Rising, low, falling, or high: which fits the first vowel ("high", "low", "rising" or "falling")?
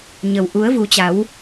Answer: low